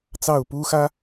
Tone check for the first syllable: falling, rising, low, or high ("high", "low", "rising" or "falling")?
falling